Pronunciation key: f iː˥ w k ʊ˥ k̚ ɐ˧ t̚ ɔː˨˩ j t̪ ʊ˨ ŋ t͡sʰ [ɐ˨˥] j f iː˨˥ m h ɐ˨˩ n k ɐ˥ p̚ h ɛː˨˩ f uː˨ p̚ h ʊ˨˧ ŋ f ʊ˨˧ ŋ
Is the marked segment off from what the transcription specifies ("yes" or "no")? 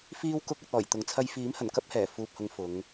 yes